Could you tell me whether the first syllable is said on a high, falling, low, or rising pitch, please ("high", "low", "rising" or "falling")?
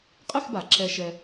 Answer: falling